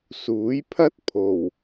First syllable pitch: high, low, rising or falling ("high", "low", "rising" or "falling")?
rising